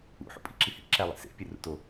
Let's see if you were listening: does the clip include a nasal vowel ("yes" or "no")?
no